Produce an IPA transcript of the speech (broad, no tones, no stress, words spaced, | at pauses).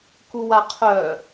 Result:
kuwaqʰœ